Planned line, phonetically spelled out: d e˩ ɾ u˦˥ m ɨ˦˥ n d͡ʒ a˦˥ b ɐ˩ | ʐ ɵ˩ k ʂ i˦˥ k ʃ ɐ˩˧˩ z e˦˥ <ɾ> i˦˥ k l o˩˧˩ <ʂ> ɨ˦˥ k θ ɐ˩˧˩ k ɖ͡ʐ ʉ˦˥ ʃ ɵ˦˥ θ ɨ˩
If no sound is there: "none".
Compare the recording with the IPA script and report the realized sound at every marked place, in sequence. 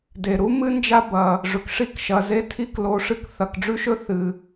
tʰ, ʂ

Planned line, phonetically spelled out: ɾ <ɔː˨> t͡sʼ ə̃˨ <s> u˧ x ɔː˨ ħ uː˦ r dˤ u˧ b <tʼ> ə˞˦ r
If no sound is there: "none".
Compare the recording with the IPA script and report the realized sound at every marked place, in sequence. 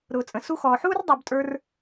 ʊː˨, s, tʼ

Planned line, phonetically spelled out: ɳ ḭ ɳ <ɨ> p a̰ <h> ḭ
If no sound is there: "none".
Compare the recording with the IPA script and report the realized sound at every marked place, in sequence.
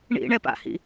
ɛ, h

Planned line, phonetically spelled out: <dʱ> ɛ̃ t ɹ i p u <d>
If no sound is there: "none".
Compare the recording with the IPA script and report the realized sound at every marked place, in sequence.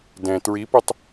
d, tˤ

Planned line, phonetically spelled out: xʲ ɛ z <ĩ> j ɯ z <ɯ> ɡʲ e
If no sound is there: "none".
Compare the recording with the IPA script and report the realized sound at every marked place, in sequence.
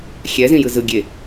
ĩ, ɯ

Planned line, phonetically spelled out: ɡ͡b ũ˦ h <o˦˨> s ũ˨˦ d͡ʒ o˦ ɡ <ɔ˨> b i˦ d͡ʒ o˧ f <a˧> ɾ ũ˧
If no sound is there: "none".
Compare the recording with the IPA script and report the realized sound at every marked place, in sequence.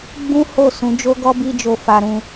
o˦˨, ɔ˦, a˧

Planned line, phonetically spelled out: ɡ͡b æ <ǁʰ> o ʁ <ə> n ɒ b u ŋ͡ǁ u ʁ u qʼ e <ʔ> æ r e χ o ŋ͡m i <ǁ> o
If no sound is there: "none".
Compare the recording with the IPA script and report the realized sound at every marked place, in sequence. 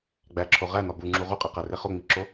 ǁʰ, æ, q, ǁ

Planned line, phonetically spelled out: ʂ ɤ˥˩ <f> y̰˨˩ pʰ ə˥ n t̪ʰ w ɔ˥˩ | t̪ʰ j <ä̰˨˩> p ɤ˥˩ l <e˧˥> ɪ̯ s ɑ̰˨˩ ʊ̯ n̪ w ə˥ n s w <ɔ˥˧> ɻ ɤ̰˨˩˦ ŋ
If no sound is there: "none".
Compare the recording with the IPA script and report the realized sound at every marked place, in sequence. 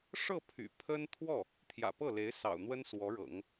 pʰ, ä̰˨˩, e˧˥, ɔ˧˥

